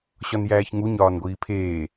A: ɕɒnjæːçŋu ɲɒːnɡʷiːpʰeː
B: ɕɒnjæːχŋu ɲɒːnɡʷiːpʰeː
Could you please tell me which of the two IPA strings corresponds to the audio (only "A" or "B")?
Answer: A